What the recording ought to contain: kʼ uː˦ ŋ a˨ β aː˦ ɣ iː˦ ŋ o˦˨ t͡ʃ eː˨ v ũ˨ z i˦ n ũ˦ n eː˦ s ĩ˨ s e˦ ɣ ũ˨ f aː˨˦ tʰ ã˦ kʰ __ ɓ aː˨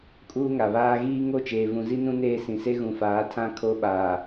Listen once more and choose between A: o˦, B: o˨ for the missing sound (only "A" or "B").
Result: A